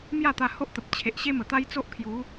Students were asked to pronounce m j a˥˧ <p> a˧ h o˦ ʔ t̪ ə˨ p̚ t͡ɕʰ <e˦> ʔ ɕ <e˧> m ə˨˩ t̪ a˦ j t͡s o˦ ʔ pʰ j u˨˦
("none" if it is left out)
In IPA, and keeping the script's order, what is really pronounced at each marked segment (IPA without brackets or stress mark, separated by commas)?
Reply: t̪, e˨, e˦